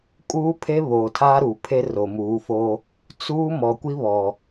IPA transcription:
kʼ uː˦ pʰ e˦ β oː˨ tʰ aː˦ ɾ uː˨ pʰ e˦ r o˨ m uː˨˦ f o˦ | t͡s uː˦ m ɔ˨ kʷ i˦ β ɔ˨

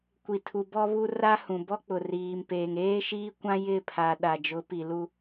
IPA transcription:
kʷ i˨ tʰ u˨ b ɔ˦ β u˦ r a˦ h ũ˨ b ɔ˦ k͡p ʊ˨ r iː˨ m p eː˨ ŋ eː˦ ʃ iː˦ kʷ ã˦ j ɪ˦˨ pʰ a˨ ɗ a˨ d͡ʒ ʊ˨˦ p i˨ l u˦

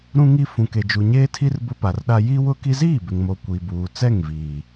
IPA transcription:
ɾ ũ˦ ŋ i˦ f ũ˨ k e˨ d͡ʒ u˨ ɲ eː˦ tʰ i˦ r b ʊ˦ p a˨ r ɗ a˦ j i˦ w ʊ˦ k i˦ z iː˦˨ b ɪ˨ ŋ m o˨ kʷ i˨ b uː˨ t͡s ɛ˦˨ ŋ v iː˨

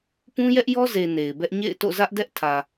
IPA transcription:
p ũ˦ j ɛ˦ ʔ j ɔ˦ z e˨ n e˨ ɪ̯ b ɛ˦ ʔ ɲ ḛ˦˨ ɪ̯ t o̰˦˨ z ä˦ ʔ d ɛ˦ ʔ tʰ ä˨

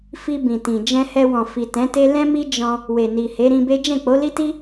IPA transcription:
f i˧ b ĩ˨ t ĩ˨ d͡ʒ ɛ̃˧ h ɛ˧ w ɔ̃˨ f i˨ t ɛ̃˨˦ t e˦ l ɛ̃˦ m i˦ d͡ʒ ɔ̃˧ | w e˨ n i˨ h e˨˦ ɾ ĩ˧ b e˦ d͡ʒ ɛ̃˦˨ k͡p o˨˦ l i˦ t i˦

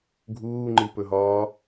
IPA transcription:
ɡʱ uː ŋ͡ǃ i p ɵ ɦ ɒː

